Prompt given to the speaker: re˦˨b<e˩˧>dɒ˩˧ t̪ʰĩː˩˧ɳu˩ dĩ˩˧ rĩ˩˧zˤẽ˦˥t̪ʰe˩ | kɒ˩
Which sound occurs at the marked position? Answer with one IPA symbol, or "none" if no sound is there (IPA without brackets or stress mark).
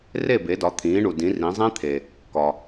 e˩˧